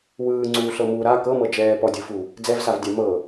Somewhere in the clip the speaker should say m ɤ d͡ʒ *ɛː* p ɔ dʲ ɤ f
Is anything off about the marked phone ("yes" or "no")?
no